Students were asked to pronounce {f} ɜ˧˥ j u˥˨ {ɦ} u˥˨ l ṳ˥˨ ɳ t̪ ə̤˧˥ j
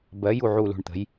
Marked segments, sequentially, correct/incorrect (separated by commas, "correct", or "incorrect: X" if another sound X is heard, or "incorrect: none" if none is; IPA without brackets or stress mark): incorrect: b, incorrect: ʕ